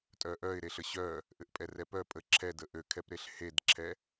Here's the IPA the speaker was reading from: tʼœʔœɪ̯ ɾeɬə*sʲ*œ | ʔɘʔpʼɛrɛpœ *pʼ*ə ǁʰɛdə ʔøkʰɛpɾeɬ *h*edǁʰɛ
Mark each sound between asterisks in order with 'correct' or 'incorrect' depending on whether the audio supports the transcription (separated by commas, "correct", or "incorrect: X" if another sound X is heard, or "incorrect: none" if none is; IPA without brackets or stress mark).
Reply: incorrect: ɕ, correct, correct